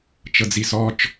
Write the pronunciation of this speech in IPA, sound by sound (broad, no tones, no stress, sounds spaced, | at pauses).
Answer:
t͡ʃ ɤ d͡z i s ɔ t͡ʃ